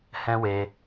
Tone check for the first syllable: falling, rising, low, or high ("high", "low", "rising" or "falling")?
high